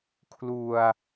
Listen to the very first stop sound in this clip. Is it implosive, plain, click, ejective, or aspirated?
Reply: aspirated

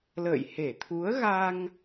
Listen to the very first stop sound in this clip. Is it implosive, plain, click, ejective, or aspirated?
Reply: aspirated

